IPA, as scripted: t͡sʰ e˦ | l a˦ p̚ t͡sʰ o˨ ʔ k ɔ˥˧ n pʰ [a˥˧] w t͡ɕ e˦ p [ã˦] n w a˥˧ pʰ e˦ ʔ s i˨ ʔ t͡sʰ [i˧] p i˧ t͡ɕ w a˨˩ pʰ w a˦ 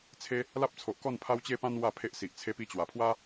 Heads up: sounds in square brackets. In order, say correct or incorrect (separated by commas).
incorrect, correct, incorrect